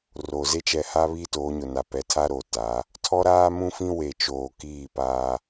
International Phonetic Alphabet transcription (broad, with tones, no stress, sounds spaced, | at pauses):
r o˨ z e˦ t͡ʃ ɛ˨ h a˦ β iː˦ t oː˨˦ ɲ ʊ˨ n a˨ p ɛ˨ tʰ a˦ ɾ o˨ t a˨˦ | tʰ ɔ˦ ɾ aː˦ m ũ˦ f ĩ˦ w e˨ t͡ʃ oː˨ k iː˦˨ p aː˦